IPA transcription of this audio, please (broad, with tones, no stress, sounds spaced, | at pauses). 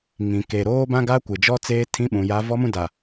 ŋ ĩ˨ k e˨ ɾ oː˦ b ã˦ ɡ aː˦ kʷ ɪ˨ d͡ʒ ɔ˦ t͡s eː˦ tʰ ĩ˦ ɓ ũ˨ j a˦ v ɔ˦ m ũ˦ d a˨